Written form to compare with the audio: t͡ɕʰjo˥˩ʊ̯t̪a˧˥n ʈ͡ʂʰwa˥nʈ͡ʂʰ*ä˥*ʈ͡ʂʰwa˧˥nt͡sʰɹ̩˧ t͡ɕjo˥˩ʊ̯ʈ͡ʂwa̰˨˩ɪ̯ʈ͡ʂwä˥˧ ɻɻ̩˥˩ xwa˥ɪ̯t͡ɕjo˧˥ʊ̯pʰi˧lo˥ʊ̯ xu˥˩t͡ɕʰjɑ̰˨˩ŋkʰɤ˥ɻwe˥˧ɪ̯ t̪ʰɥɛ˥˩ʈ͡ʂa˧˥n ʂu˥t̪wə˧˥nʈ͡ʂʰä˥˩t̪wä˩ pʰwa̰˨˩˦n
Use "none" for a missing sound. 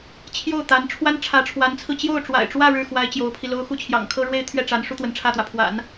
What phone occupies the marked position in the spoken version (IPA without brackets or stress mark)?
ä˧˥